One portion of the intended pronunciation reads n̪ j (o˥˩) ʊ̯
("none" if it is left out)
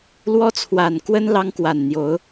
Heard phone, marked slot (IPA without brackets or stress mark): o˧˥